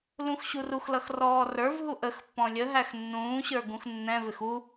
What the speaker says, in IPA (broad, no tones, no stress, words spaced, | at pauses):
lũxɕuruxlʌx rɔːrə˞vɦu ʔəxpːɔ̃ lʲəɦæx nːũːɕə˞ ɡũxnːɛ̃vɪx u